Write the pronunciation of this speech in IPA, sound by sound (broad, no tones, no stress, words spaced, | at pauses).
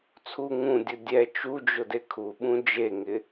t͡sʰu ŋũdʲʊ dʲɛ t͡ʃud͡ʒʊde kʰuɓũ d͡ʒeŋɪ